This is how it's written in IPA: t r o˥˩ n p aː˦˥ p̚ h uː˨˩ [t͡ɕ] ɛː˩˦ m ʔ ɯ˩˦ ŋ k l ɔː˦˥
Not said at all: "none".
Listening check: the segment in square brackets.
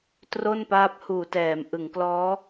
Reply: t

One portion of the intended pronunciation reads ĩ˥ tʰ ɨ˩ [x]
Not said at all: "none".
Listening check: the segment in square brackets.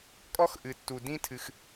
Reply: x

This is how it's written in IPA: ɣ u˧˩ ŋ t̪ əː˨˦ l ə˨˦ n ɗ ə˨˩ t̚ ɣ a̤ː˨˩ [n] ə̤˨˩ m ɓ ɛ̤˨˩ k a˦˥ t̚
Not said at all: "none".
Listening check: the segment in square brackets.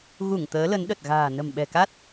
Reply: n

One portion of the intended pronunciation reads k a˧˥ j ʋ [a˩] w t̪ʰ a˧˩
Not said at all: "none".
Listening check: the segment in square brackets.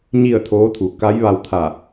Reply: a˧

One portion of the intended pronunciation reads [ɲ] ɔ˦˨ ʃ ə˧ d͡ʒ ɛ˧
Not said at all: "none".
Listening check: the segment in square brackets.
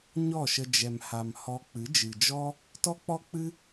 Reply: ɲ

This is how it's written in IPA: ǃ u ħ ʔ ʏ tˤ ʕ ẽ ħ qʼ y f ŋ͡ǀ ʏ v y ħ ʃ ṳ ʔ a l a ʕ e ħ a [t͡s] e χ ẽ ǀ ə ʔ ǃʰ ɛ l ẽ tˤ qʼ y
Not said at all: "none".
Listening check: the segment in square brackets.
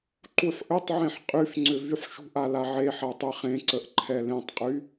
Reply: tˤ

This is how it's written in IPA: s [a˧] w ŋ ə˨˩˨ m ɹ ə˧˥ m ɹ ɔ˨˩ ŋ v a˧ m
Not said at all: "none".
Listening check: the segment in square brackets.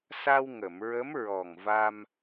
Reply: a˧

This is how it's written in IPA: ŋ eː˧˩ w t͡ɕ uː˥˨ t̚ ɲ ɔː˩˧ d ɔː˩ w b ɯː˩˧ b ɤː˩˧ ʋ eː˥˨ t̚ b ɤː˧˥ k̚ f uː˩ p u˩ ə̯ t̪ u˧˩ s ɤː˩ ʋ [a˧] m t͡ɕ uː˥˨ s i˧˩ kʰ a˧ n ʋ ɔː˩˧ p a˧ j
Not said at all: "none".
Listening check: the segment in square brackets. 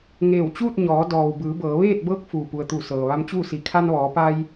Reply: a˧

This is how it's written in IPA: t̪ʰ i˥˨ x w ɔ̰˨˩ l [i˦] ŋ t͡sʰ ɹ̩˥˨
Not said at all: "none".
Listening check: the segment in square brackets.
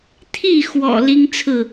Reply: i˦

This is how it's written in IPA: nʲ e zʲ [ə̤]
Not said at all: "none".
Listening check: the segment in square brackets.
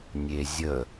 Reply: ə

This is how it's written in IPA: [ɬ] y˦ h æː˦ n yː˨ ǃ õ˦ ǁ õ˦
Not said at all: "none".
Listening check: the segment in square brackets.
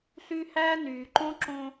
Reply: ɬ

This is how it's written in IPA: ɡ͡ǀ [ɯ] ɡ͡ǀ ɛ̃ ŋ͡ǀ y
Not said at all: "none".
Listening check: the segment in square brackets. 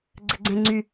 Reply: ə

